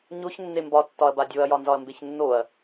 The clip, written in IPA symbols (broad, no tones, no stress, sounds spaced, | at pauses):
ɲ o ç nː e m b ɒ tː ɒ ɐ̯ b a dʲ o ɐ̯ j ɒ n z ɒ ɐ̯ m b e ç nː o ɐ̯